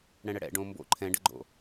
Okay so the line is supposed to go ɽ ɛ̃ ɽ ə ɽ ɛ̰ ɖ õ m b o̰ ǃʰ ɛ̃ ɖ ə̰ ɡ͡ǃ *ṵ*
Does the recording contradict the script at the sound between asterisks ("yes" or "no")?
yes